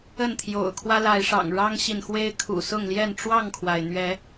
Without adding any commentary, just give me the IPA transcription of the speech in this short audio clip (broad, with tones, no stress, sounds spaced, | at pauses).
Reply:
ə˥˨ n t̪ʰ j o̰˨˩ ʊ̯ kʰ w ä˦ l a˨˦ ɪ̯ ʂ ɑ̰˨˩ ŋ ɻ ɑ˦ ŋ ɕ i˨ n x w e˦ ɪ̯ kʰ ṵ˨˩ s ʊ˥˨ ŋ l j ɛ˥˨ n ʈ͡ʂ w ɑ˥˨ ŋ kʰ w a˩ ɪ̯ n̪ ɥ ɛ˨˦